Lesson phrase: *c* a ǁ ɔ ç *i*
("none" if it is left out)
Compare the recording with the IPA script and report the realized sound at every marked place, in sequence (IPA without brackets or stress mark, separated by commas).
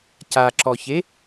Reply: c, e